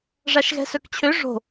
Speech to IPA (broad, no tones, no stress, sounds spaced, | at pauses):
ʐ a ʃ ɣ ɛ̤ s œ k t͡ɕʰ ø ʐ o̤